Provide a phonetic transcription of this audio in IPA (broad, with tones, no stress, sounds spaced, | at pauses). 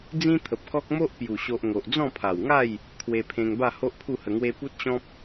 d͡z ĩ˦ t̪ʰ ə˨ p̚ k ɔ˦ k̚ m o˦ ʔ p j u˨˩ ɕ o˨ ʔ ŋ o˨ ʔ d͡z ɔ̃˥˧ pʰ a˨˩ w ŋ a˥˧ j | kʰ w e˧ pʰ ẽ˧ ŋ b a˥˧ h o˦ ʔ pʰ u˥˧ h ə˧ ŋ w e˦ p u˦ t̚ ɕ ɔ̃˦ p̚